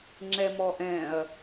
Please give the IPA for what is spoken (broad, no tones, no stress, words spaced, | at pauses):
ŋ͡ǁɛmɔʔɛ̃ɐ̯